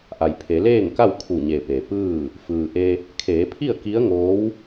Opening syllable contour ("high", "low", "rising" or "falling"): low